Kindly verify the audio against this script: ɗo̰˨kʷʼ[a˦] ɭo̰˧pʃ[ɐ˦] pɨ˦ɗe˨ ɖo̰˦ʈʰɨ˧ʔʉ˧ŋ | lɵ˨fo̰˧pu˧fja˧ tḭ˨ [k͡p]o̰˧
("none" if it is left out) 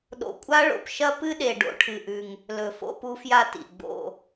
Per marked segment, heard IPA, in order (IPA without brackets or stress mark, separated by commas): a˦, ɐ˦, ɡ͡b